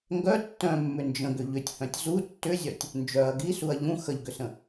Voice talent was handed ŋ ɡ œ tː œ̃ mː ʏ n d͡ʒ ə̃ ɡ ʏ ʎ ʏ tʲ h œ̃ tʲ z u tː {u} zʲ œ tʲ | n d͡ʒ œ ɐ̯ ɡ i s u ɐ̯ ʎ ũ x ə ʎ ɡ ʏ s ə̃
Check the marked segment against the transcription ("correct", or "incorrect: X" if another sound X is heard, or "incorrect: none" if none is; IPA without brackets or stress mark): incorrect: ʏ